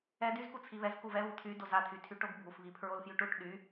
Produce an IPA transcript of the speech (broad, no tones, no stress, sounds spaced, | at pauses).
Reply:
ɛ d y z k u t͡sʰ i β ɛ z k u v ɛ β u t̪ʰ y d o z a t̪ʰ y tʰ y ʈ o ɡ bʱ u f β i pʰ ɹ o l f j y ʈ u ʈ ɗ y